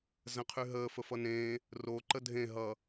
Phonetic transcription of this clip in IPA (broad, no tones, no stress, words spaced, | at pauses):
zə̃qʰyɦəː fəfʌnẽː | ro ǃədʱẽ ɦʌ